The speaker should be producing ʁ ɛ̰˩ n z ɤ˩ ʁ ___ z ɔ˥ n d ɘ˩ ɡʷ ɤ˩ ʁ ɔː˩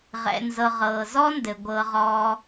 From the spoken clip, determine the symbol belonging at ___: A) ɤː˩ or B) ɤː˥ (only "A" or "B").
A